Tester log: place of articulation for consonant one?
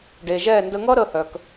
retroflex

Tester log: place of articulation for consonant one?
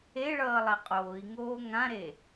retroflex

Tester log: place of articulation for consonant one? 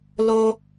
alveolar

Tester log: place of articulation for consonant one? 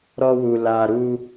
alveolar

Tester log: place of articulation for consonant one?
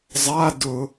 alveolar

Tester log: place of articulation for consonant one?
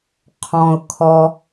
uvular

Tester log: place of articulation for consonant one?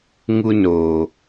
velar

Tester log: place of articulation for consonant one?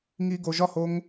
velar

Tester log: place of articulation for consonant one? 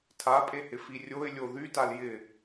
alveolar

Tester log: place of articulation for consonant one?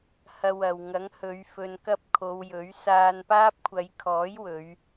glottal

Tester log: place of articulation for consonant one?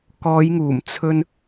velar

